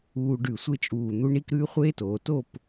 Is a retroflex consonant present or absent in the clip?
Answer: present